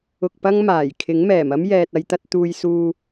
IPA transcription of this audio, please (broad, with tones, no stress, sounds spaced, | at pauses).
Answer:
ʊ˧ k̚ p ɐ˥ ŋ m aː˨˩ j kʰ ɪ˨˥ ŋ m ɛː˨˩ m ɐ˥ m j ɛː˨ t̚ ɐ˧ j t̪ ɐ˧ t̚ t̪ uː˧ j s uː˧